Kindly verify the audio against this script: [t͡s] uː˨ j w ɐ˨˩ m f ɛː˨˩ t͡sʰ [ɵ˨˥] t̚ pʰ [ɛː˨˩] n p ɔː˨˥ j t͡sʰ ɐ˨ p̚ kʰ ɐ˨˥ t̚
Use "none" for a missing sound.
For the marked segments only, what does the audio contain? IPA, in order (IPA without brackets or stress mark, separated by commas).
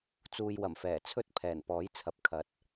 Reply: t͡s, ɵ˥, ɛː˨˩